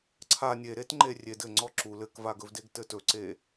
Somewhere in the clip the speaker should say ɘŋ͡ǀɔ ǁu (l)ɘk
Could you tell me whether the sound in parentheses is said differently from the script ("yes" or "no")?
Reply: no